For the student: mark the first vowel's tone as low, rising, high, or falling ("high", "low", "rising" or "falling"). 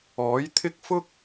rising